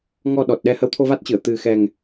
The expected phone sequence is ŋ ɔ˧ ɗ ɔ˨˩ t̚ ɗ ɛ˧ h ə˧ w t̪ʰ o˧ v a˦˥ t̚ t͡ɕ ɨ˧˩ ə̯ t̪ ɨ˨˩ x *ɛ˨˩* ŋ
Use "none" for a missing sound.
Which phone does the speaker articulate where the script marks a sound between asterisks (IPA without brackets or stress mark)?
ɛ˨˩